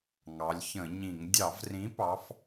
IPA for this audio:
ŋ ɑ˩˧ lʲ ç ə̃˧˩˧ ɲ ĩ˧˩˧ ŋ dʲ ɑ˧˩˧ v r ĩ˨˥ p ɑ˨˥ f

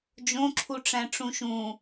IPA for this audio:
d͡ʒ õ ǁʰ u ʈ͡ʂ æ̃ ʈ͡ʂ ũ ʃ ũ

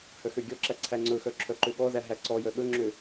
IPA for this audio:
h œ x ø ɡʲ ɔ ǁ æ ǀʰ æ ŋ͡ǀ ɵ x œ ǁʰ œ ǃ ø ɠ ɔ z æ ɦ æ ǀ ɔ j œ ɠ ɵ ŋ͡ǁ ø

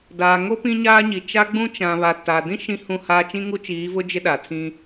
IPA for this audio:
d aː˨ ŋ o˦ p ĩ˦ ɲ aː˦ ɲ i˨ t͡ʃ a˦ ɡ͡b ũ˦ t͡ʃ ã˨ β a˨ t a˨ d ĩ˦ ʃ ĩ˦ h ũ˦˨ h aː˦ t͡ʃ ĩ˦ ŋ u˦ t͡ʃ iː˨˦ v ʊ˦ d͡ʒ ɪ˦ ɗ a˨ tʰ ĩ˦

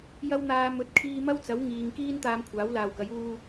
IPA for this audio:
j ɐ˧ w n̪ aː˨ m ɵ˨˥ t̚ kʰ iː˧ m ɐ˥ w t͡s ɐ˨˥ w ŋ iː˨ ŋ k iː˥ n t̪ aː˧ m kʷʰ aː˨˥ w l aː˨ w k ɐ˨˥ j uː˧

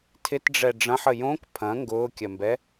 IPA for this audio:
tʰ ɪ t ɖ͡ʐ ɛ ɖ͡ʐ ɐ̃ ħ ə j õ k pʰ ɐ̃ ŋ ɡ ʊː kʲ ɐ m b ɛ

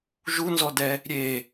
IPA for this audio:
ʒ u n z ɔ d ɛ | ɾʲ e

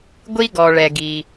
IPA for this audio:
ɡʷ i˦ ɡ ɔ˨ ɭ ɛ˨ ɡ i˨

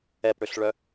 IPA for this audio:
ɛ p ɽ ø ɬ ɭ œ

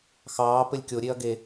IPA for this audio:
x ɑː p ɘ lʲ kʲ o ɾʲ e ɐ̯ ɡ e

